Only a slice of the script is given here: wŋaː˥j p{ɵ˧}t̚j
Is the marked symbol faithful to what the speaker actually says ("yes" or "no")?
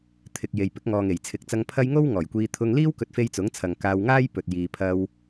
no